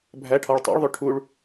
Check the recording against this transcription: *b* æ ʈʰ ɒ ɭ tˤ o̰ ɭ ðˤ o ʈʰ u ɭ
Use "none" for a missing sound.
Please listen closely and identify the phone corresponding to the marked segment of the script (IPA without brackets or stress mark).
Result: bʱ